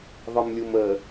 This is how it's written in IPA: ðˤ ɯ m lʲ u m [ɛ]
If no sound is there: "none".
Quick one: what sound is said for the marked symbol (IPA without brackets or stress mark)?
ə